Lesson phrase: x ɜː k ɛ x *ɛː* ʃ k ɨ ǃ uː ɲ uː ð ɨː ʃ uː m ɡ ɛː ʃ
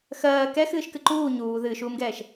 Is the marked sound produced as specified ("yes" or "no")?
no